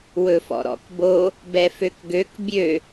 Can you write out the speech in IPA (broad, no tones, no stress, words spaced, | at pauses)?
wɵfɔ̰ɾɔ̰kbo | bɛføkɡøk bʲø